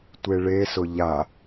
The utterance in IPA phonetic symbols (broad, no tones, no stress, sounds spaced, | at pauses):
tʷ e ɭ e s ʊ ʎ a